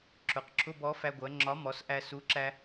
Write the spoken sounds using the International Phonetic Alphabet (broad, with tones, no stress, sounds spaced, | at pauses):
ǁ ʊ˩˧ q ǁʰ ʊ˧˥˧ b ɔ˨˥ f æ˧ ɡʷ ɜ˩˧ ŋ͡ǁ ɒ˨˥ m ɔ˩˧ s ʔ æ˧ s u˨˥ ǁ æ˧